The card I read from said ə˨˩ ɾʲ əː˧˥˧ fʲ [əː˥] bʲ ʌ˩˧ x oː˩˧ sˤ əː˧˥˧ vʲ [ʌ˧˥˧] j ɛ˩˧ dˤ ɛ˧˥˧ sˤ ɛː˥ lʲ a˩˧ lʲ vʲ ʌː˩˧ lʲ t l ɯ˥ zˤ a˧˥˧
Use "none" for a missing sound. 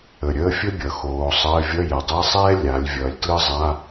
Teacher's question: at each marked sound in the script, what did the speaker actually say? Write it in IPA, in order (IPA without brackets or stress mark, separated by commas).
ə˥, ʌ˧˥˧